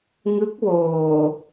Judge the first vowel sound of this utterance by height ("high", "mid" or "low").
high